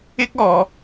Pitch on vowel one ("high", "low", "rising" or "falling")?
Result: high